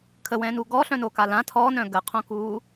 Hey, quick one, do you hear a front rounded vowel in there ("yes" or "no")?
yes